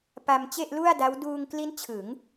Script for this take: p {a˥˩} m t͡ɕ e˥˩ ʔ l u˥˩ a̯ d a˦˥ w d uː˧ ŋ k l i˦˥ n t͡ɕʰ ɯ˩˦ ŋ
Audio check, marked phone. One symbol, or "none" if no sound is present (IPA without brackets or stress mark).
a˧